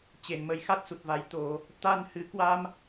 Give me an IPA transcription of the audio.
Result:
t͡ɕ e˨˩ n m ə˨˩ j x a˦˥ t̚ s u˨˩ t̚ v a˨˩ j t̪ o˧˩˨ | t̪ a˧ n h ɨ˨˩ k w a˧ m

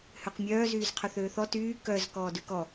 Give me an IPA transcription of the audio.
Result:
h ø q mʲ œː z yː z qʰ œ θ øː θ ɔ t yː k œ z k ɔː d ʉ k ɔ

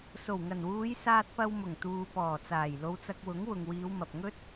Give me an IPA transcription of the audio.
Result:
s o˨˩ w ŋ ɐ˨˩ n w uː˨˧ j s aː˧ t̚ p ɐ˧ w m ʊ˨˩ ŋ t̪ uː˨ p ɔː˨˩ t͡s aː˨˩ j l o˨˧ w t͡s ɐ˧ k̚ w ʊ˨˥ ŋ w ʊ˨ ŋ w iː˨˧ w m ɐ˨ p̚ ŋ ɵ˥ t̚

